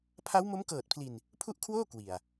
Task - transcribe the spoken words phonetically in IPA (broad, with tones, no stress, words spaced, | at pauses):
pʰa˦˥wmo˦˥mkɤː˨˩t̚pʰli˨˩n | pʰu˥˩ʔkʰwoː˥˩ kwi˨˩a̯